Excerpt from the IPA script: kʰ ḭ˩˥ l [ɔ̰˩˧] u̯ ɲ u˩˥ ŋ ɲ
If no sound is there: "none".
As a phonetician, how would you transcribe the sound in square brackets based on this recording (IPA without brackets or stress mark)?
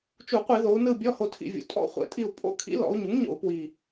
ɔ̰˩˧